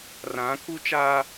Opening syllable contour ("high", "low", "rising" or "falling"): rising